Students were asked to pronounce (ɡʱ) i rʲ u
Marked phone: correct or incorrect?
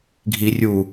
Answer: correct